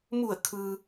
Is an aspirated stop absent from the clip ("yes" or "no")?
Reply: no